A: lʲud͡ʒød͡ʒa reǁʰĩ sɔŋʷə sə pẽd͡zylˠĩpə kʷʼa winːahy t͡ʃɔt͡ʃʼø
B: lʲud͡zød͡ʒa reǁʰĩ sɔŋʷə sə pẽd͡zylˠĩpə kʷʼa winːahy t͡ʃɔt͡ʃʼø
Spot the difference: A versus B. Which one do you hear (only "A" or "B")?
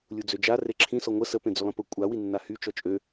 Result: B